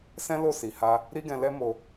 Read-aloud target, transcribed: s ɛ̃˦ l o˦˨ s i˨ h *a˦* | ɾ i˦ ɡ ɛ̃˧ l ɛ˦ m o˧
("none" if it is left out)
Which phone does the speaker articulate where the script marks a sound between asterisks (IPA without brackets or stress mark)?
a˧